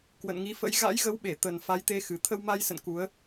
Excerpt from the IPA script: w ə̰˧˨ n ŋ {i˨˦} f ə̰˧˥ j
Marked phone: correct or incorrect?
correct